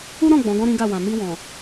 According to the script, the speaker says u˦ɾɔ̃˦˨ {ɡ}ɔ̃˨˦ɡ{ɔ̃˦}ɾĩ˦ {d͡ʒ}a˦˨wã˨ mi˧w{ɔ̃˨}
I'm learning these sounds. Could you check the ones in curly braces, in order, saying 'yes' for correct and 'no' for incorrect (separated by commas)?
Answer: no, yes, no, yes